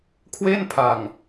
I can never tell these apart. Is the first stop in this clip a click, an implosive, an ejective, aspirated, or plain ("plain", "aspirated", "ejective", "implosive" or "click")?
aspirated